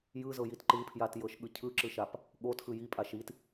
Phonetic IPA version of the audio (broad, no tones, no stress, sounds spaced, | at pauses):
j ɯ z ɤ j i t ǃ ɯ pʰ j a t j ɤ ʃ ɠ ɯ cʰ ɯ ǁ ɯ ʃ a p | ɠ o t x ɯ j i pʼ a ʃ i t